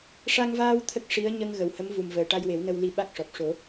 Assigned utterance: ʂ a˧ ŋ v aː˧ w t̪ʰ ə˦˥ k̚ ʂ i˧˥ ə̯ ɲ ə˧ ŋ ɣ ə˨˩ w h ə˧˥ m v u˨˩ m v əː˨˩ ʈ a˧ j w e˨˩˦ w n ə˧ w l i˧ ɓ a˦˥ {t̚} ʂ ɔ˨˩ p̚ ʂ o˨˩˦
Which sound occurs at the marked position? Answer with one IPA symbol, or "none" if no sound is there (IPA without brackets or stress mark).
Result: k̚